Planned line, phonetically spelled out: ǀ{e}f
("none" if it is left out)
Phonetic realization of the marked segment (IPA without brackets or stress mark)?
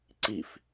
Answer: i